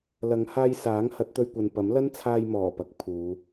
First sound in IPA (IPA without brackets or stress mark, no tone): l